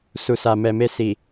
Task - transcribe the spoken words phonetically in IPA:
su˨sa˨mɛ˨me˧ si˨

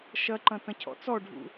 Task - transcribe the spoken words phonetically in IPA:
ʃɐǃɐ̃ tɐ̃cʰɔ̰t͡sɔɖʱṵ

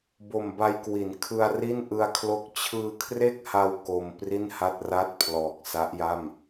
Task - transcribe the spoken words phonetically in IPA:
bo˨˩mba˧jkwi˩˦n kʰɯ˧a̯ri˥˩nʔɯ˧a̯kʰlo˥˩k̚ t͡ɕʰɯː˧kʰre˥˩k̚ha˧w ko˧m pri˥˩nha˥˩t̚ra˥˩t̚pʰlɔː˨˩k̚ sa˦˥ʔja˥˩m

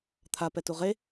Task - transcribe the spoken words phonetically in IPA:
t̪ʰa pɛtuʁe

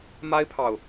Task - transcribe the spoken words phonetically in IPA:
ma˥ɪ̯pʰɑ˨ʊ̯

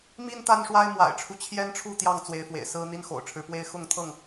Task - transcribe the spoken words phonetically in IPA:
mi˦n t̪a˦nʂwa˦ɪ̯mwa̰˨˩ɪ̯ʈ͡ʂʰu˦ t͡ɕʰjɛ˦nʈ͡ʂʰu˥˨ t̪jɑ˥˨ŋt͡swe˨˦ɪ̯fwḛ˨˩ɪ̯sɹ̩˦ n̪i˦nxo̰˨˩ʊ̯ʈ͡ʂʰɻ̩˦pwe˦ɪ̯ xʊ˥˨ŋt̪ʰɤ˥˨ŋ

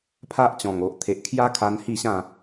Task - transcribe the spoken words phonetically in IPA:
pʰa˦ʔt͡ɕɔ̃˨˩ŋo˨ʔ t̪ʰe˨ʔkʰja˦kʰa˧n hi˥˧ɕã˥˧

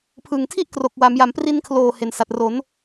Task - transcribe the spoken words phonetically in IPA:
pʰɯ˨˩ŋ tʰi˥˩ʔ kro˨˩k̚wa˩˦m ja˩˦mpri˧nkʰloː˨˩ he˨˩n sa˨˩t̚ro˩˦n

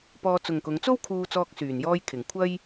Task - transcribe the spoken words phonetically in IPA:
pɔː˧t͡sʊ˨ŋkʊ˨˧ŋ t͡so˥wkʰuː˧t͡sɔː˧k̚ syː˨˩njɔː˧jkʰɪ˨˩ŋ kʷʰɐ˥j

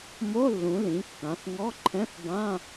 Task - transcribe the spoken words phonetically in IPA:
mo˧˥˧lːũ˩˧ lĩ˩˧kːã˩˧θŋɔ˧˥˧ǃʰɛ̃˧˥˧θ bã˧˥˧

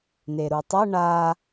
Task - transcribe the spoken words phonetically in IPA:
neɾutˤɛ ɳa

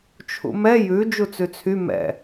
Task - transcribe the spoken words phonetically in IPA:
t͡ʃʰṵmɛ jʉ d͡ʒut͡sʉt͡sʰy mɛ̰

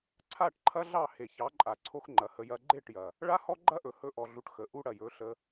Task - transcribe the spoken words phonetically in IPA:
ǀʰa˦˨ʈǃʰɐ˦ɮɑ˦˨ he˨çɑ˨˦ ǃʼa˨ǀʰo˦xŋ͡ǃɐ˨hə˧ jɐ˧ɡ͡ǃe˦˨ʈjɐ˨ | ɭa˦hɔ˦ɡ͡ǃɐ˦ʔɵ˨ hɵ˧ʔɔ˨ɮu˨ʈ xə˨ʔu˦ ɽɐ˨jɵ˨˦ɬə˧

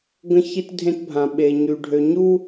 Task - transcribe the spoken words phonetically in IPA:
ɡə̃˦çi˦tdʱẽ˦tbʱã˨ ɓe˨ɲy˨ɖʱø˨ ɲu˦

